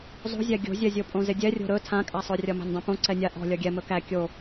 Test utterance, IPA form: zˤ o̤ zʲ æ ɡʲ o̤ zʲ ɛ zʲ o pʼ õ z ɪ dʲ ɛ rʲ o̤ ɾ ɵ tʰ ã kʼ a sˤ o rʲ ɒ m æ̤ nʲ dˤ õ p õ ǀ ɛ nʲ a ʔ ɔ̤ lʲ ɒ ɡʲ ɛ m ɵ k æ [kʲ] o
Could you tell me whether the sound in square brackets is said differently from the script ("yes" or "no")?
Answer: no